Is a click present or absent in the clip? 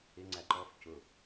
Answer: present